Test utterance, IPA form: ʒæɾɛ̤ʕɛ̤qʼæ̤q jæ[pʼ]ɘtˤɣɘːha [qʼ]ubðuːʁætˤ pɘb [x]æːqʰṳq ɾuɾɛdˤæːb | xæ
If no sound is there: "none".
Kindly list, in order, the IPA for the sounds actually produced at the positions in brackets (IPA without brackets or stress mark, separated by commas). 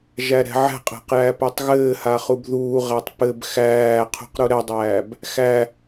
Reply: p, χ, x